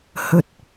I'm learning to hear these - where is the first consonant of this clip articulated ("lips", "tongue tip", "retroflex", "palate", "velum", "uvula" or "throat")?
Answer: throat